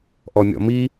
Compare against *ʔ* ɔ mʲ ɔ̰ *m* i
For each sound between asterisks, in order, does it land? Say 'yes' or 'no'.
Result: yes, yes

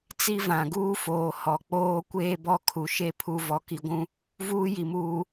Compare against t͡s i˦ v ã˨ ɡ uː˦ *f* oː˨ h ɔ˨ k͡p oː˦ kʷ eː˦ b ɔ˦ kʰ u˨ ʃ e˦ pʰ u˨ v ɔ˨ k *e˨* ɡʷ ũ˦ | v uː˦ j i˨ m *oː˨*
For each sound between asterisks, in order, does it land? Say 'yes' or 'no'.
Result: yes, no, no

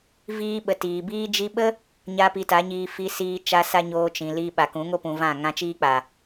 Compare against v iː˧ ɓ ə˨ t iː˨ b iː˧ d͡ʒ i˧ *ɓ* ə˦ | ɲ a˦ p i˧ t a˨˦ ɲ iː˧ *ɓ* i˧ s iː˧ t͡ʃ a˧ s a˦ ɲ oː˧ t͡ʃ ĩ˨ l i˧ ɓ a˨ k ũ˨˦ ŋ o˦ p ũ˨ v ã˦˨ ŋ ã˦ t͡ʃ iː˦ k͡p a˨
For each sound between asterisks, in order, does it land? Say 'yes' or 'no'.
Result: yes, no

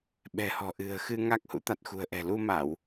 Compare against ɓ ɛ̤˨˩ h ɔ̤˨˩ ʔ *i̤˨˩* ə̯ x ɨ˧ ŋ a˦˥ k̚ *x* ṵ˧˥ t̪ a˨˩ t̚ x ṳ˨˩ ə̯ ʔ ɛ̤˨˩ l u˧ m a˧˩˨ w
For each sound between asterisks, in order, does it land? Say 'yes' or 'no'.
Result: no, no

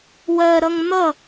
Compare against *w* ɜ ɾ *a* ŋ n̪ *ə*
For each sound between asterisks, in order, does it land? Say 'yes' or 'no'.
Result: yes, no, no

